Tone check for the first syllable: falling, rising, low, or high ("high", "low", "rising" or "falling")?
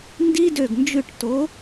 high